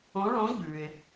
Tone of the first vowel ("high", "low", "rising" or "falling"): rising